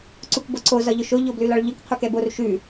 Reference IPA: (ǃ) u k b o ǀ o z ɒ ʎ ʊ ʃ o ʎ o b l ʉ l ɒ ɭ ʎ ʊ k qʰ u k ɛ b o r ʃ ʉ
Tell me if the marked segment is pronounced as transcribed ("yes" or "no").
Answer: no